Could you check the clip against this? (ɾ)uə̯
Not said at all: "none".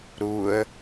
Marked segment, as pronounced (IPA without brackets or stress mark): ɾ